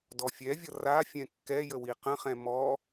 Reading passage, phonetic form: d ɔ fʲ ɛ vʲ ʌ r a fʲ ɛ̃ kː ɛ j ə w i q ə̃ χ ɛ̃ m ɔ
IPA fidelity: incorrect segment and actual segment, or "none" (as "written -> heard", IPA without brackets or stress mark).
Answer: none